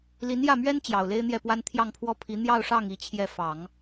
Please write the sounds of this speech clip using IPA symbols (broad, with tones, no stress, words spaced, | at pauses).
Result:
li˧˥njä˥˩mɥɛ˥n t͡ɕjɑ˨˩ʊ̯le˥ɪ̯n̪jɛ˥˩pwa˥n t̪ʰjɑ˥˧ŋpʰwɔ˥˩pʰi˧˥ n̪jɑ˥˧ʊ̯ʂɑ˥˩ŋ i˥t͡ɕʰjɛ˥˩ fɑ˨˩˦ŋ